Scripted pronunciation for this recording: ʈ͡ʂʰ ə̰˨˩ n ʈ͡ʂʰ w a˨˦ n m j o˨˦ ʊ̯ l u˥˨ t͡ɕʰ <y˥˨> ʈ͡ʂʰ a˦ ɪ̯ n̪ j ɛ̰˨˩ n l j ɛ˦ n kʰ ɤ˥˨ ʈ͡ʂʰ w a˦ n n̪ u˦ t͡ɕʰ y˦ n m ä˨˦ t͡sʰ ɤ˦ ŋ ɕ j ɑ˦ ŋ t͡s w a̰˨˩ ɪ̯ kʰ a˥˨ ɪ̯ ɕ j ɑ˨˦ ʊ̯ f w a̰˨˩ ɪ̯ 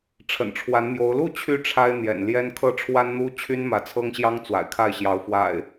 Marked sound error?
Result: no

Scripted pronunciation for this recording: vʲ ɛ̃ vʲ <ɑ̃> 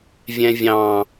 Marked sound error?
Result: no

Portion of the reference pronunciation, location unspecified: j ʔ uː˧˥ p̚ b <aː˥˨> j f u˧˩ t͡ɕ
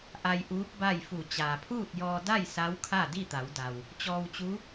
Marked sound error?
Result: yes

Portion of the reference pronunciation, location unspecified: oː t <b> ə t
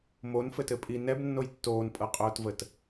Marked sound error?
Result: yes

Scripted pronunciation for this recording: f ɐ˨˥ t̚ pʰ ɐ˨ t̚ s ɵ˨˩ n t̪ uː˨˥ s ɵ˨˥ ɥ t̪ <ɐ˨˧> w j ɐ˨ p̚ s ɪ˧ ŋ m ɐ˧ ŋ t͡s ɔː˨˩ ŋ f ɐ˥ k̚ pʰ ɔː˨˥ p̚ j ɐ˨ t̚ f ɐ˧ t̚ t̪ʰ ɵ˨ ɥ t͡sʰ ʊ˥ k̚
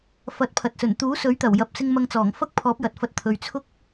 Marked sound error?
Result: yes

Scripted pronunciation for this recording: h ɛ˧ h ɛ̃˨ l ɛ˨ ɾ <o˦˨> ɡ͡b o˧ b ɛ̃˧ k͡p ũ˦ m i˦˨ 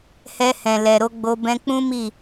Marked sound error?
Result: yes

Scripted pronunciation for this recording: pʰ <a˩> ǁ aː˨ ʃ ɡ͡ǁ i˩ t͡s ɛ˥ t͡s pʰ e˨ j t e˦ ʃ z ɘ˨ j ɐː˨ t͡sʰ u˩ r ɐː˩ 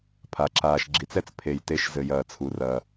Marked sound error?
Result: no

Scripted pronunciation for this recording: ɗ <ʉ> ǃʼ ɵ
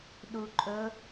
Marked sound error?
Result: yes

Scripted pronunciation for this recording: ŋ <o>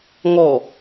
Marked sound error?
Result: yes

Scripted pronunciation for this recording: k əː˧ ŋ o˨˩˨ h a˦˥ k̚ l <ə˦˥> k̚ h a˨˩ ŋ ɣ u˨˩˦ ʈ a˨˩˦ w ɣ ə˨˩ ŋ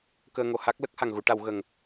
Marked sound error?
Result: no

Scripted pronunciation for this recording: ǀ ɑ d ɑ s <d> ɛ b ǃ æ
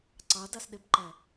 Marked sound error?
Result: yes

